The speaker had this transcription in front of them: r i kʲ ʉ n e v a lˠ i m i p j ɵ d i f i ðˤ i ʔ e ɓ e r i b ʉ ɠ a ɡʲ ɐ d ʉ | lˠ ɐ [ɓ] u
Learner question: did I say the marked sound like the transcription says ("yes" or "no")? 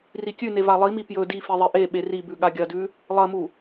no